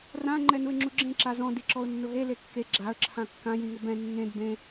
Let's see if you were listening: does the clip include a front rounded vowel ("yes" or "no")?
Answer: no